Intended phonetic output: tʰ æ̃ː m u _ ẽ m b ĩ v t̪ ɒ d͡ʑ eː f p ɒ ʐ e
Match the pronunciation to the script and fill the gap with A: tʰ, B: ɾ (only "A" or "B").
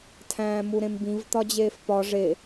B